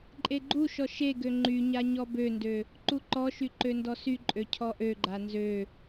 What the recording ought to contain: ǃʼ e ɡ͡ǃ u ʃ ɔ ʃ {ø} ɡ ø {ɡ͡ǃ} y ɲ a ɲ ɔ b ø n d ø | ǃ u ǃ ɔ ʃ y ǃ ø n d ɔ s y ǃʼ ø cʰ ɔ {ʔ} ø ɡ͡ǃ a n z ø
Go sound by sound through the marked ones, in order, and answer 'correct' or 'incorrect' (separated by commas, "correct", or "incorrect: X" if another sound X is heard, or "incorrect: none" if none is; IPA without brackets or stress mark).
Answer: incorrect: e, incorrect: ŋ͡ǃ, correct